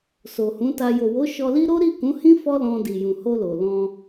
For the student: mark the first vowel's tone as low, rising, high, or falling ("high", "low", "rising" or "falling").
low